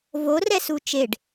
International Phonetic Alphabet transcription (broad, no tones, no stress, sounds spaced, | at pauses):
v o r ɛ s u t͡ʃ e ɖ